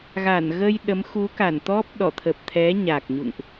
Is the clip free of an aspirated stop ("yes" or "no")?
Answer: no